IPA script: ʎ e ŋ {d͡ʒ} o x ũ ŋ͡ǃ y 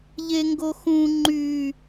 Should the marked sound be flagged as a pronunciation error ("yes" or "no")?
yes